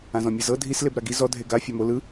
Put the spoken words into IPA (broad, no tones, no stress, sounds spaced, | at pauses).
ã z ɔ̃ mʲ ɯ z ɤ dʱ i s l e b ɾ a ɡ i z ɔ dʱ e ɡ a fʲ a m o l ɯ